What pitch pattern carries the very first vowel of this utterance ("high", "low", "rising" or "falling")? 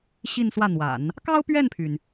falling